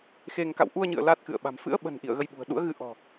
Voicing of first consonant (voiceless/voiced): voiceless